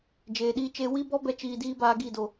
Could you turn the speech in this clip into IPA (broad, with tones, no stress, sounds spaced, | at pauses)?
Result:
d͡ʒ eː˨ ɗ iː˧ t͡ʃ eː˧ w i˦ b ɔ˦ b ɛ˦ t͡ʃ iː˧ d iː˦ b aː˧ ɡ i˦˨ d o˨